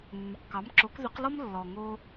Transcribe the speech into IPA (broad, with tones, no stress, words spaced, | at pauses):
mːʏ˩qkɑ˩˥mǁo˩˥k ðʏ˩˥qlɔ˥m lːɔ˩ ŋo˧